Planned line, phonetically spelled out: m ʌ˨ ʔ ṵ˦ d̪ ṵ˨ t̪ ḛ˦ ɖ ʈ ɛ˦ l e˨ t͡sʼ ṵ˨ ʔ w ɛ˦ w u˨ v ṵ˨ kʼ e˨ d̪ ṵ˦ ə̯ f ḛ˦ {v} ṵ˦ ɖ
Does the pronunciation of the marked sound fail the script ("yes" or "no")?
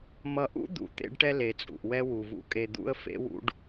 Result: yes